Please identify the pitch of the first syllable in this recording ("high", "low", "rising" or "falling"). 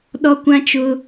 high